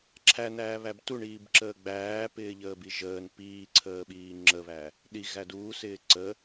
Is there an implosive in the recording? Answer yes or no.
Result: yes